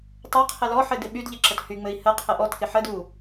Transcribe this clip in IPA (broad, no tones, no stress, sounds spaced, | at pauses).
tˤ ɘ qʰ ɘ l ɔ ħ ɘ d ɪ ɓ y d ʎ ɪ ǁ ə t h y ŋ͡m ɘ i̯ h ə qʰ ə ʔ ɔ t k ɪ ħ ə d u